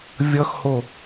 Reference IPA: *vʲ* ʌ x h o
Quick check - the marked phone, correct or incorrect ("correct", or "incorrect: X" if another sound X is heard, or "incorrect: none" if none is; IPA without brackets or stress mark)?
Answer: correct